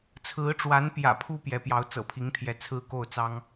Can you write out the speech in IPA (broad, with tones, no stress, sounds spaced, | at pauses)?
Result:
t͡sʰ ɹ̩˧˥ ʈ͡ʂ w a˧˥ n p j ä̰˨˩ pʰ u˥ p j ɛ˧˥ p j ɑ˧˥ ʊ̯ t͡s ɤ̰˨˩ pʰ i˧˥ ŋ t̪ʰ j ɛ˧˥ t͡sʰ ɹ̩˥ k o˥˩ ʊ̯ t͡s ɑ˥ ŋ